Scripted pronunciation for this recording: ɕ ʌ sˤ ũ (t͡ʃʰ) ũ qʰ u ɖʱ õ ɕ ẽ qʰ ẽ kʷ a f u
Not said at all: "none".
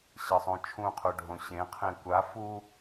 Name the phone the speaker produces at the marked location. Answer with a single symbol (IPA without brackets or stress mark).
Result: t͡ʃʰ